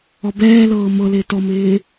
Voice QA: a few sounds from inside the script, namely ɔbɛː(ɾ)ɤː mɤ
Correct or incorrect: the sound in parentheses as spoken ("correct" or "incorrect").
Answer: incorrect